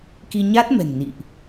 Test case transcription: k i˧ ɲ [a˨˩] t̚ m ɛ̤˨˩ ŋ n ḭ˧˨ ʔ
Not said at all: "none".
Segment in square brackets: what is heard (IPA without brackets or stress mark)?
a˦˥